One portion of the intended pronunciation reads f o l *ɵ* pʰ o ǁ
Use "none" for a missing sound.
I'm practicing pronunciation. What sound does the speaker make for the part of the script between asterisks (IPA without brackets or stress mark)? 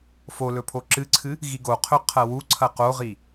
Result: ɵ